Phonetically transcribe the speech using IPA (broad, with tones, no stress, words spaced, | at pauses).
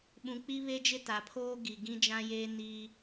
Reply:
ɓũ˨k͡pi˦ βe˦d͡ʒɪ˦ta˨pʰoː˦ ɡi˨ ɡĩ˦d͡ʒã˦jeː˦ niː˦